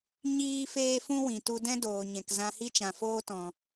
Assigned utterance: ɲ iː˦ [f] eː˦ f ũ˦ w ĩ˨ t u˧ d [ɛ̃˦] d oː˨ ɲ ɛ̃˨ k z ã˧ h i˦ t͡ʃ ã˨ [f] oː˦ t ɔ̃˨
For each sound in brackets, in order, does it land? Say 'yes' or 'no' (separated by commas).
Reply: yes, yes, yes